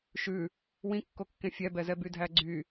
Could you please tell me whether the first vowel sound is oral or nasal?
oral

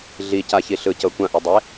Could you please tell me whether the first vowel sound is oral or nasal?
oral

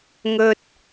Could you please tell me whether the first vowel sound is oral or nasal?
oral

